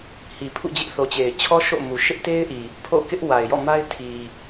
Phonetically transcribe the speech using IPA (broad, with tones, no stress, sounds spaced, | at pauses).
h i˨ pʰ ṵ˦˨ d͡ʑ ɪ˦ ʔ θ o˨ t͡ɕ e˨ ɪ̯ t͡ɕʰ ɔ˦ ʃ o̰˦˨ m u˨ ʃ ɪ˦ ʔ t e˦ ɪ̯ ʔ i˨ | pʰ o̰˦˨ k ɪ˦ ʔ w a˨ ɪ̯ j ɔ̰˦˨ m a˦ ɪ̯ tʰ i˨